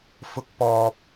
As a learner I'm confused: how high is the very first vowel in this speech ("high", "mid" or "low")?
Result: high